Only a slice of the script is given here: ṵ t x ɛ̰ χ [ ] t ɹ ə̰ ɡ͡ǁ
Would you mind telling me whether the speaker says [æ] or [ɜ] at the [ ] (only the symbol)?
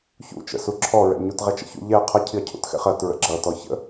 ɜ